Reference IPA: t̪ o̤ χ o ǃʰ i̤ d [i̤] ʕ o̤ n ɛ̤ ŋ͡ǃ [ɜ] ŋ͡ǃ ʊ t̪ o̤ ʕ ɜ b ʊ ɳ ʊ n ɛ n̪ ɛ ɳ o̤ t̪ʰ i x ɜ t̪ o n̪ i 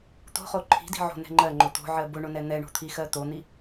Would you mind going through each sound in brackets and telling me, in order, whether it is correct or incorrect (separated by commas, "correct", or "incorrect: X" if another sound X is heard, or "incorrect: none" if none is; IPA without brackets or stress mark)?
correct, correct